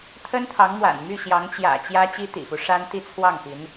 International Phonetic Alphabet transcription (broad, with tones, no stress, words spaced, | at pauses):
t̪ʰə˥nt̪ʰɑ˧˥ŋmwa̰˨˩n my˥˩ɕjɑ˧˥ŋt͡ɕjä̰˨˩t͡ɕjä˥ t͡ɕi˥t̪ḭ˨˩fu˦ ʂa˥n t̪i˥˧t͡sʰwɑ˥˩ŋpi˧˥n